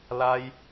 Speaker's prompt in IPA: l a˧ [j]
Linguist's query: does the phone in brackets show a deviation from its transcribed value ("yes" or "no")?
no